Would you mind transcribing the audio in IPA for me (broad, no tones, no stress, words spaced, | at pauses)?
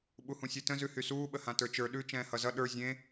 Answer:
ɓuhũsʲʉtə̃ zʉhysuː ɓəhãtə˞t͡ʃə˞ ɗʉ t͡ʃɛ̃ːhʌzʌ ɗə˞ zʲẽ